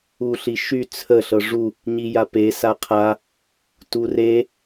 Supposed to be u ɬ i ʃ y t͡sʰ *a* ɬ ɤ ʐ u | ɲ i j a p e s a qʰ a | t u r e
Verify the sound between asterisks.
incorrect: ə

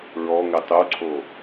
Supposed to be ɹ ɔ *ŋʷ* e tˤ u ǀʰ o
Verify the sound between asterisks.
incorrect: ŋ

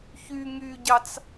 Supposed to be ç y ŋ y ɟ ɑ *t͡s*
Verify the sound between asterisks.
correct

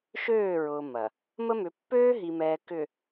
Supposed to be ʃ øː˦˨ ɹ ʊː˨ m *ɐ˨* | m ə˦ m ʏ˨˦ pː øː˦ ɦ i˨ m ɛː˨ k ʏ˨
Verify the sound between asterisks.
correct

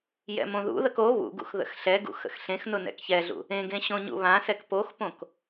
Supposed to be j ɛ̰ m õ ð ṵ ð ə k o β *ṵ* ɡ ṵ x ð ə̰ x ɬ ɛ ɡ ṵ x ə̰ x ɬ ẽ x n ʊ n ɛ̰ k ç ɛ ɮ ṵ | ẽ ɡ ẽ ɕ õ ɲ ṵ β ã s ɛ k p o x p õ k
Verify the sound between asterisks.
correct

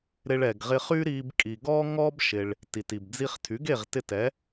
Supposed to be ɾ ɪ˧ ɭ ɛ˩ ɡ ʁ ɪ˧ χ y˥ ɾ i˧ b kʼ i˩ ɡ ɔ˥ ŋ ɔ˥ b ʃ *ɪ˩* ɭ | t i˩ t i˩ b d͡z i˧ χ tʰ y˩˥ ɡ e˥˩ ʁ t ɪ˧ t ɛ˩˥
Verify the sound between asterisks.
correct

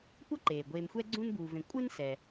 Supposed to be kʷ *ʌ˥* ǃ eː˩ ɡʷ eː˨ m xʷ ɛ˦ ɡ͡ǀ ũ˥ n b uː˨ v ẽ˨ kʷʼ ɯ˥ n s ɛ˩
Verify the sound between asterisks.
correct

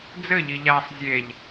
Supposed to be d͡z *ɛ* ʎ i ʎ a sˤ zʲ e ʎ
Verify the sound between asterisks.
incorrect: ɘ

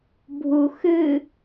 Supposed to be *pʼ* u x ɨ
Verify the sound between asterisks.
incorrect: bʱ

